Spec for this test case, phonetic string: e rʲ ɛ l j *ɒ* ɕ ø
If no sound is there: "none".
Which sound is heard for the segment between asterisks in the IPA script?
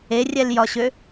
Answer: ɒ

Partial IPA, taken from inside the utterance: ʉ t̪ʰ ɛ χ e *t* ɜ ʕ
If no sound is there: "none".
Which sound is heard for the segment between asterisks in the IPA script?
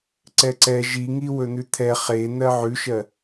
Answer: n̪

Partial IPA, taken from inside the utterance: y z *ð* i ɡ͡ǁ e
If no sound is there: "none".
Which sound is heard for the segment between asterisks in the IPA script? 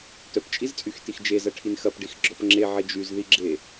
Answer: ð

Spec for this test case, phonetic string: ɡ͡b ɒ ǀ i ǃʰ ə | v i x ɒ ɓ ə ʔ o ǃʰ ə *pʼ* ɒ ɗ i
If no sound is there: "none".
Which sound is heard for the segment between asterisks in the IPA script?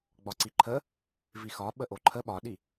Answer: ɓ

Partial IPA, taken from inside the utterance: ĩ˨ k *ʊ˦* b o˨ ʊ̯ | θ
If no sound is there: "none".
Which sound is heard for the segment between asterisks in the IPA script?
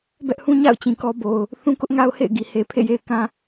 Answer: ɔ˦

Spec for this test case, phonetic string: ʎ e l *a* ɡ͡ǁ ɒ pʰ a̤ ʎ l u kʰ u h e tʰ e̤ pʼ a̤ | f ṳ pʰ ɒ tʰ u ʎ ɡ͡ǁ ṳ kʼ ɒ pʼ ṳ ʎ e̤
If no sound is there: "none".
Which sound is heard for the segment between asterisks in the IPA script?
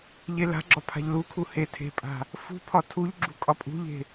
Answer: a̤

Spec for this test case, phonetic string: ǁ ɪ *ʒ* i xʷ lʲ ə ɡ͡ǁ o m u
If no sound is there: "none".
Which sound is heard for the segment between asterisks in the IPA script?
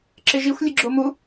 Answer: ʒ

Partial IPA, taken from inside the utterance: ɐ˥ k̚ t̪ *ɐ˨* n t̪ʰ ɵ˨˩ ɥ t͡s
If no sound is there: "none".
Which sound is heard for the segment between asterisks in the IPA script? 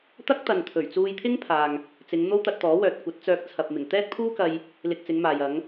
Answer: ɐ˨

